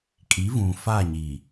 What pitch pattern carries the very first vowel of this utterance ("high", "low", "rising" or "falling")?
rising